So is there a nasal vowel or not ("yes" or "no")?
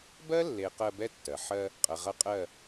no